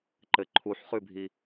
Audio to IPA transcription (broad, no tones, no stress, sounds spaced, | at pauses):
ǃ ɘ ǃʰ u ħ χ ʉ bʱ i